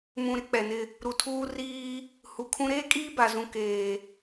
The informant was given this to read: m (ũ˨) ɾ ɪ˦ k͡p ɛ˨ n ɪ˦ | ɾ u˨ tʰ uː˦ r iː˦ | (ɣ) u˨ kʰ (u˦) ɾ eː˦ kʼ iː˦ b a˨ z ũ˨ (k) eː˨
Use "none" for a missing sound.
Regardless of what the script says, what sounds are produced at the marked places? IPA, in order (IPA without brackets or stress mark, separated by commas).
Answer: ũ˨, h, ũ˦, k